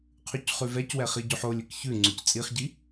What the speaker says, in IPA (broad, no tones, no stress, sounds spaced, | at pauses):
qʰ ʉ c χ ʉ v ɛ c w ɛ χ i ɟ ʉ ħ o lʲ ɘ k ç ʉ ŋ͡ǀ ʉ c t͡sʼ i χ ɟ i